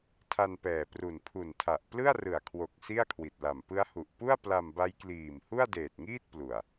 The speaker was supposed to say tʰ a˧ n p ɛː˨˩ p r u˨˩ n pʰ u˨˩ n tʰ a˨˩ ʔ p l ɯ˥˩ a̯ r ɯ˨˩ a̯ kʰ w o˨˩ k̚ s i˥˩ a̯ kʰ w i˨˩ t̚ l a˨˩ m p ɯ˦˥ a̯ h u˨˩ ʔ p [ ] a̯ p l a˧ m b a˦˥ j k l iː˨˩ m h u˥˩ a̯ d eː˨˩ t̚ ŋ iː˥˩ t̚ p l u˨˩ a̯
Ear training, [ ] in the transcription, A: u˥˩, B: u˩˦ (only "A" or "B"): A